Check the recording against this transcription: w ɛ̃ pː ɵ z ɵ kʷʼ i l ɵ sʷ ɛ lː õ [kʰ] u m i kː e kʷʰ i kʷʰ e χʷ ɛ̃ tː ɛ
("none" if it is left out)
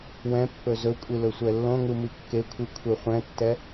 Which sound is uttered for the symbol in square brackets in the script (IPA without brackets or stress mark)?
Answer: ŋ